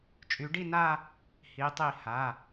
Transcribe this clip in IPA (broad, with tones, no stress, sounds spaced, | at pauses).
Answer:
t͡ʃʼ y˨˦ ɖ i˥˧ n a˥˧ | h i˨˦ tˤ i˧˩ h a˩˧˩